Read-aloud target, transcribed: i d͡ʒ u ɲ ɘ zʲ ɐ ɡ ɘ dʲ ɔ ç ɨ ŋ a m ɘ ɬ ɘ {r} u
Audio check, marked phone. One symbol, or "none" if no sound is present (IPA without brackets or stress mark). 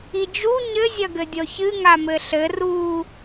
r